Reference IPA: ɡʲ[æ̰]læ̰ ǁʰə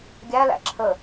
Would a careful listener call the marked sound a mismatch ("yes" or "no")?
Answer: yes